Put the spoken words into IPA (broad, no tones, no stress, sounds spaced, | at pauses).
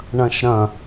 ɳ ɐ̃ ʃ ɾ ɐ̃